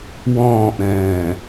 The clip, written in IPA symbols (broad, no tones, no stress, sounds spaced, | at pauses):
w ɔ̃ː ʔ ɾ ɛ̃ː